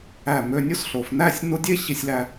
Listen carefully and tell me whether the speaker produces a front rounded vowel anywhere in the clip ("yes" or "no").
yes